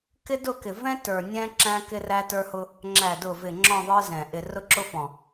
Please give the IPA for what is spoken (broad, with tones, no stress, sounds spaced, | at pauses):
k ɪ˦ d ʊ˦˨ k ɪ˨ v ɛ̃˦ t ə˞˨ nʲ ɛ̃˦ ǁ æ̃˦ k ɪ˦ r æ˦ t ə˞˦ h ʊ˦ | ŋ͡ǁ æ˨ d ʊ˨ v ɪ˨ ŋ͡ǁ ɔ̃˦˨ ðˤ ə˞˦ z ɛ̃˨ ʔ ɪ˨ r ʊ˦ ǁ ʊ˦ f ɔ̃˨